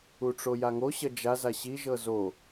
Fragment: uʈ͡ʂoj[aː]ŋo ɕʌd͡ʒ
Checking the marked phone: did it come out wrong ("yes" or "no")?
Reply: yes